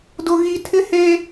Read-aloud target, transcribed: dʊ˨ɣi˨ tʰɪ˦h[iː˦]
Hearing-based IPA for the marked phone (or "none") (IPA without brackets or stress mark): eː˦